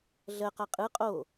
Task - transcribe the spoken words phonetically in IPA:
ɮ ɜ q a qʼ ɯ qʼ o

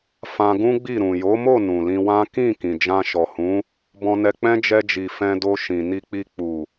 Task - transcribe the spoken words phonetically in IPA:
f ã˧ ɡ ũ˦ ɡ͡b i˦˨ ɾ ũ˨ j o˨˦ m o˦˨ n ũ˨ l ĩ˧ w ã˦ k ĩ˦˨ k ĩ˨ d͡ʒ ã˧ ʃ ɔ˨ h ũ˨˦ | b ɔ̃˧ n ɛ˧ k͡p ɛ̃˦ d͡ʒ ɛ˧ d͡ʒ i˨ f ɛ̃˧ d o˧ ʃ ĩ˨ n i˧ k͡p i˧ k͡p u˨

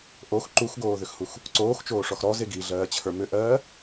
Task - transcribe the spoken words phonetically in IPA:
ʔ o x ǃ u x ɡ oː ð ʏ x h u x | ǀ oː x t͡ʃ oː ʂ ɔ x ɾ ɔ z e ɡ i ɮ ɜː t͡ɕʰ ə˞ m ʏ ʔ ɜː

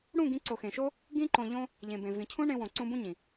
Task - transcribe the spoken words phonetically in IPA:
ɽ ũ˦˨ ɡ ĩ˧ ǀ o˨ x ẽ˨ ʃ o˦ | ɡ ĩ˦ ǃ õ˧ ʎ õ˦ | ʎ ẽ˨ b ẽ˨ v ĩ˨ cʰ ũ˦ ɳ ẽ˧ w õ˨ ǀ ũ˧ b ũ˦ ɲ ĩ˨

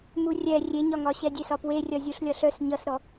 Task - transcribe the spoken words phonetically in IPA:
m u rʲ ɛ rʲ e ɲ ɒ ŋ ɒ ɕ ɛ dʲ e s ɒ p w e rʲ ʌ zʲ u ɬ lʲ ʌ ɬ œ s ɲ ʌ s ɾ ɔ

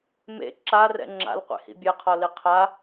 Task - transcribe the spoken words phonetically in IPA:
m ḛ ǁ a r ɛ̰ ŋ͡ǁ a̰ l qʷ ḛ h ḭ bʲ ɛ qʰ ɔ l i qʰ a

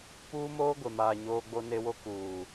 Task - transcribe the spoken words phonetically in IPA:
p uː˦ m oː˦ ɡʷ e˨ m aː˨ ɲ oː˦ ɡ͡b o˦ n e˦ w o˦ k uː˨

